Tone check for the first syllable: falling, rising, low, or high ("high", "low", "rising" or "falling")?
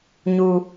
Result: low